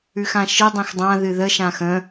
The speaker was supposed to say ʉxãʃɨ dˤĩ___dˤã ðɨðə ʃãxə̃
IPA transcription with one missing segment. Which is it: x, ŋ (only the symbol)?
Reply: x